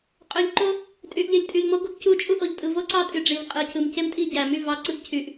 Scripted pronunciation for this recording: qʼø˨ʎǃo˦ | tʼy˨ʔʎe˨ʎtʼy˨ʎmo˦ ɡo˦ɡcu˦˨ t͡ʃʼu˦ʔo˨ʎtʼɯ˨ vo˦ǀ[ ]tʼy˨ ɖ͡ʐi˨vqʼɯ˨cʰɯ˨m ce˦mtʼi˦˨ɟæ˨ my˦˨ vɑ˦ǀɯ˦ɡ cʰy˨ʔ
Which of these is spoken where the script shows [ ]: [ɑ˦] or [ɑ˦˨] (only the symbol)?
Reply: ɑ˦˨